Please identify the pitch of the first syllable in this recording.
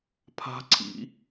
high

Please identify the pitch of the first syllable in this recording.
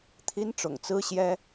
high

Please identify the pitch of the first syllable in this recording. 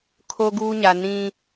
high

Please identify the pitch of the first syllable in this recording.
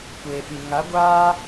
low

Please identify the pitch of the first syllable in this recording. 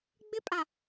high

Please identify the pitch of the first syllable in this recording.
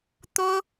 high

